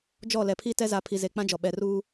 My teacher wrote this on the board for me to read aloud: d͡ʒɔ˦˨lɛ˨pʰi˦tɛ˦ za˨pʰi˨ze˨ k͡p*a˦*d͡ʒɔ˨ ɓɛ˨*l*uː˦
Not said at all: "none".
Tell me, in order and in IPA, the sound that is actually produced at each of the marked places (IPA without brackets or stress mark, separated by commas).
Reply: ã˦, r